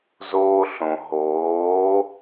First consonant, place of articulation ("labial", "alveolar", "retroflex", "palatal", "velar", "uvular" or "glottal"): alveolar